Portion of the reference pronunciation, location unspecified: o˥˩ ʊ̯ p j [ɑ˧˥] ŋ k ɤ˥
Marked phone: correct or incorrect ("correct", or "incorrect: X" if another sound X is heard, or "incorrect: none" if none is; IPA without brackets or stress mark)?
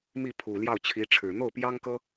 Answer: incorrect: ɑ˥